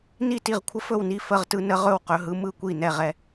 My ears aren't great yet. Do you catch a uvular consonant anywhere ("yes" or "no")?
yes